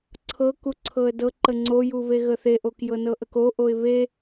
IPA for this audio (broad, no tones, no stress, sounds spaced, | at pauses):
ǀʰ ɤ k u ǀʰ ɤ ə̯ d ɤ ǃ ə ŋ͡ǀ o j u β e ɣ ə θ e ʔ o k j ɤ n ɤ ʔ ə k o ʔ o ɪ̯ β e